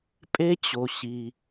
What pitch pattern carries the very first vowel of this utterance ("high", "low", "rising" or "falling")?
high